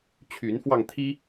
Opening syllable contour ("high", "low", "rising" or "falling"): rising